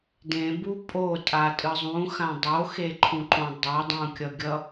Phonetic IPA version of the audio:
d ẽ b u pʼ o tʼ a tʼ ɯ zˤ ũ x ã dˤ o x e ǃʰ ũ ǃ õ dˤ ʌ dˤ ũ kʲ ʌ ɡʲ ʌ

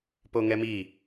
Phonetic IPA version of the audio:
p o ŋ ɛ m i

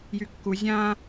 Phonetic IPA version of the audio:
j y kː u zʲ ã

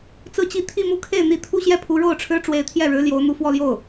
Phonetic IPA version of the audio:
t͡s ɹ̩˥˧ t͡ɕ i˥˧ t̪ʰ i˥˧ m u˥˧ kʰ e˥˩ ɪ̯ n̪ i˧˥ t̪ʰ u˥ ɕ j ɛ˥˩ pʰ u˧˥ ɻ o˥˩ ʊ̯ ʈ͡ʂʰ ɻ̩˥ ʈ͡ʂ w e˧˥ ɪ̯ t̪ʰ j ɛ˥˩ ɻ ɻ̩˧˥ l j o˧˥ ʊ̯ n̪ u˧˥ f w ɔ˥˧ l j o˥˩ ʊ̯

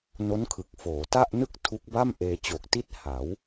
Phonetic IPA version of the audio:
n o˦˥ n kʰ ɯ˨˩ k̚ f oː˩˦ t a˥˩ ʔ n ɯ˥˩ k̚ tʰ u˦˥ k̚ b a˥˩ m ʔ eː˧ t͡ɕ o˨˩ k̚ t i˥˩ t̚ h a˩˦ w

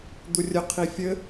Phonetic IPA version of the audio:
d̪ u rʲ ə qʰ i fʲ ɘ

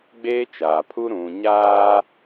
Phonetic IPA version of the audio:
ɡ͡b eː˦ t͡ʃ aː˨ pʰ u˦ ɾ ũ˨ ɲ aː˦

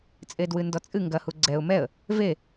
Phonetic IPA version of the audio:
t͡sʼ e d w ɨ n d ɔ t͡sʼ ɨ ŋ ɡ ɐ h u ɡ͡ǀ ɛ ʊ̯ m ɛ ə̯ | v e

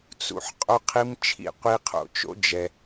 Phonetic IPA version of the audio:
t͡s ṵ˧ ħ qʼ o˦ qʰ i˦ m t͡ʃʰ ḭ˦˨ qʷ i˧ qʰ o̰˧ t͡ʃ o̰˦ d͡ʒ ɛ˧

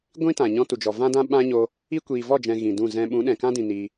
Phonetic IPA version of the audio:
ɡʷ ĩ˦ t ã˨ ɲ ɔ̃˧ t u˨ d͡ʒ ɔ˨ v ã˦ d ã˦ ɓ ã˦ ɲ o˧ | i˦ kʷ iː˨ v ɔ˦˨ d͡ʒ ɛ̃˨ ɣ ĩ˨ d ũ˦˨ z ɛ̃˧ ɓ ũ˨˦ ɗ ɛ̃˨ k ã˦ d ĩ˨ n iː˧

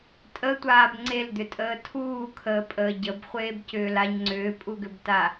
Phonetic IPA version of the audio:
tʼ ə tʷ aː b ŋ͡ǀ e l d̪ ʏ tʼ əː tʰ uː kʰ əː pʼ əː ɟ ə b χʷ eː b c ʏː l a ɲ ŋ͡ǀ ʏː pʼ u ɡ ʏ b t a

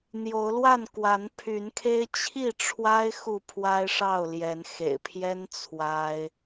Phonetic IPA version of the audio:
n̪ j o˨˦ ʊ̯ l w a˥˨ n k w a˨˦ n pʰ y˨˦ n kʰ e˦ ɪ̯ t͡ɕʰ i˥˨ ʈ͡ʂʰ w a˦ ɪ̯ x u˥˨ pʰ w a˦ ɪ̯ ʂ ɑ˥˨ ʊ̯ l j ɛ˨˦ n x ḛ˨˩ ɪ̯ pʰ j ɛ˦ n t͡sʰ w a˦ ɪ̯

